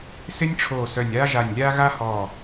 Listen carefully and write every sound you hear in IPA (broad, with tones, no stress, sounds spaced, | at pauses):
s ɪ˥ nʲ ʈ͡ʂʰ oː˧˩ s œ˧˩ nʲ aː˥ ʒ a˧˩ nʲ lʲ aː˥ ɣ a˥ h ɔː˧˩